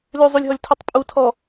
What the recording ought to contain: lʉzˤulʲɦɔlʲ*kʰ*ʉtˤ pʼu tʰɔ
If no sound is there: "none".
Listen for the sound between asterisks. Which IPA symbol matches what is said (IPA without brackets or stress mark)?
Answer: tʰ